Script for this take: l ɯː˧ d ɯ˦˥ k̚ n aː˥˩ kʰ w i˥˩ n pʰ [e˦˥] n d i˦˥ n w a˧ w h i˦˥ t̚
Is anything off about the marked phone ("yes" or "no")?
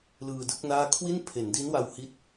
yes